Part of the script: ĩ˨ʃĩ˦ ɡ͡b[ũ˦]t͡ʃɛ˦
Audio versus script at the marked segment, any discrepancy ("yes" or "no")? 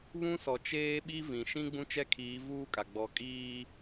no